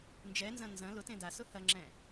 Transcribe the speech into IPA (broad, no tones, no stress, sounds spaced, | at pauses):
n d͡ʒ ɛ n z ɐ̃ n z ɐ̃ l ʊ t ẽ d a s ʊ h ɐ ŋ͡ǁ ɛ̃